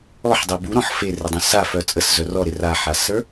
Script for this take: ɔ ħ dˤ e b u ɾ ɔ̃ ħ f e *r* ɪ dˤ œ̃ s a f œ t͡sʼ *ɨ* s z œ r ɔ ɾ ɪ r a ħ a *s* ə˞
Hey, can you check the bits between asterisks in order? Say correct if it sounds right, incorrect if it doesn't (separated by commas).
correct, incorrect, correct